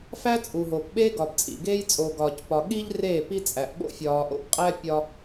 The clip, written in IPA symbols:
fæ˦t͡sʼu˨ɦoː˨p ɓeː˦ɡɒ˨bt͡sʼḭ˨ɡeː˦j t͡sʼoː˨ɡɒː˨cpɒ˨ ɠi˦ʎ reː˦˨ pi˦t͡sʼæ˨ʔ ɓo̰˦fʲɒː˨ʔo̰˦pqʼæ˦ pʲɒ˦

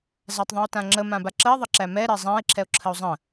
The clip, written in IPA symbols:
zatˤðˤão̯tãŋ͡ǁə mãbaǁəe̯ ðˤəǁæmɛ ɾɛzˤãe̯ ǁʰɛo̯ǁʰəo̯zˤə̃

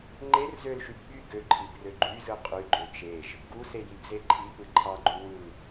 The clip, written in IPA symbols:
ŋ͡ǃer zølʃyb ɓy ɡøǃʰibrø ɡ͡ǃyzɯ qʼyɡ͡ǃø t͡ʃeʒ | ɡusejibze ǃʰipɯ ǃʰɑɡ͡ǃu wɯ

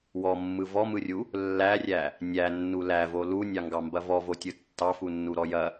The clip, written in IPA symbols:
wɔmːɯ vɔmɯrʲu | lːærʲæ | nʲænːu lævo lunʲɑŋɡɑmbɐ vɔvotʲɯ tːɑfunːuɾɔ jɐ

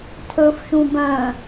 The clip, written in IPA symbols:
tʰɵf ʃũbœ̃

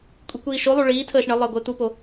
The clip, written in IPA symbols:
kʷʼikʷiːʃolˠu ɭiːtʰəːʃ ɳə lˠəːɡʷɘːt̪upo

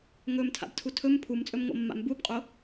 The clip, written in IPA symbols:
ŋɵmtʰa̰btʰu tʰɵm pʰumt͡sʼɵmŋo̰mːa̰m bubqʼo

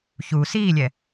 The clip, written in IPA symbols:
çu siːlʲɛ

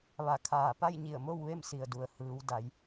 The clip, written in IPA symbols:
ʋa˧˩kʰaː˧˩ pa˥˨jɲi˧˩ə̯mo˥˨w ʋe˥˨msi˩ə̯du˩ə̯ hɯː˩˧w da˩˧j

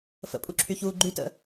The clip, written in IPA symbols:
fə̰pʼuǁʰyçuː ɡ͡ǃytə̰

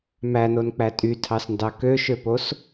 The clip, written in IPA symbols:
mænonk͡pæ tʼytʰɑsndɑ køʃøpos

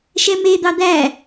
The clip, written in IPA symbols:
ʃɛmed̪ɑ d̪æ

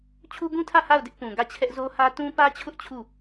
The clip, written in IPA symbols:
t͡ɕʰu˦ɡũ˦tʰä˦˨ ha˦˨ʊ̯dɪ˦ʔ pũ˨ɡä˦˨t͡ɕʰɛ˦ʔ zo˦hä˦ tũ˦pä˦t͡ɕʰʊ˦ʔ t͡ɕʰu˦˨

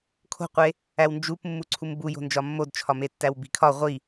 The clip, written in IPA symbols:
kʰo̤qʷe | æwnd͡ʒup mːuǀʰumbujo̤ nd͡ʒɒmːodt͡ʃʰɒme tːæwbi̤kʰɒ ʁʷi

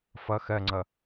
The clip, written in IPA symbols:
fʌ xɜŋ͡ǀʌ

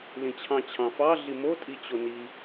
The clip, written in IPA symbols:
lĩt͡ɕʰɑ̃t͡ɕʰɑ̃fɑ ɮimo tʼit͡ɕoni

